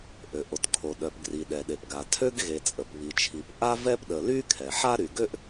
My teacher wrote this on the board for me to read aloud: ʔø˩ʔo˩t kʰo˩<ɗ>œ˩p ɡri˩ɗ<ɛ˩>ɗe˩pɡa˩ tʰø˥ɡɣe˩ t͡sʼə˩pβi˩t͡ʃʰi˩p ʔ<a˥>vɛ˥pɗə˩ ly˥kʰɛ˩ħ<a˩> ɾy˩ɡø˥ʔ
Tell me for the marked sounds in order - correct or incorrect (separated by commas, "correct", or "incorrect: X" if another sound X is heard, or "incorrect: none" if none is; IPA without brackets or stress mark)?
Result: correct, correct, correct, incorrect: a˥